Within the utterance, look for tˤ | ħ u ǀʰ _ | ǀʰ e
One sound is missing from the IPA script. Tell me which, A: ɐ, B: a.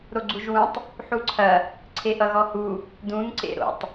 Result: A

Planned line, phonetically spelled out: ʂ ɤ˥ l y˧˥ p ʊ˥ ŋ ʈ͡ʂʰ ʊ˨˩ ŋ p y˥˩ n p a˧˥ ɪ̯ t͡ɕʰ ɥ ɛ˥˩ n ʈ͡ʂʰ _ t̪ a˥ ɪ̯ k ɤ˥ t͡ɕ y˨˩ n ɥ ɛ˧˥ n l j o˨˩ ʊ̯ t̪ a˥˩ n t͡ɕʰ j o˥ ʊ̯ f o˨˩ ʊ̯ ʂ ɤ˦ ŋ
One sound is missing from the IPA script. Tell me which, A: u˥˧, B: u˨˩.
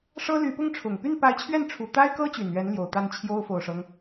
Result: B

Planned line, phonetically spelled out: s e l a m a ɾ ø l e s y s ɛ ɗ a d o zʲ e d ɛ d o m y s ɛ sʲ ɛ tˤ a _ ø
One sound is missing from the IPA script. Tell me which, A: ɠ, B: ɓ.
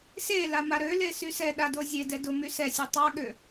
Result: A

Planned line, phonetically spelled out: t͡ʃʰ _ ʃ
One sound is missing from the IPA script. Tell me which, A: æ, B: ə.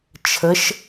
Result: B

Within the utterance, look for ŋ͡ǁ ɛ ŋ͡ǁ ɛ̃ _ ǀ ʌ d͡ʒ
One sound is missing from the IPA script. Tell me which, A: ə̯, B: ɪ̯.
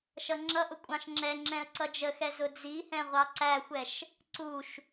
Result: A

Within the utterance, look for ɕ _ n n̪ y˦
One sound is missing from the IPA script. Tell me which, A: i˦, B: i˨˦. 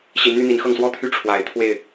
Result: B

